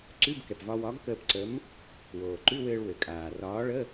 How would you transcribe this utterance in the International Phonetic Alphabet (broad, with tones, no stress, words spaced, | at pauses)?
ǀʉ˧˥˧bkɛ˩pvɒ˧wɒ˨˥ɡ kəː˧pǀə˨˥m | woː˩ǃʉ˧˥˧wɘː˧ɭ wɘ˩ kʼaː˩rɒː˨˥ ɭə˧˥˧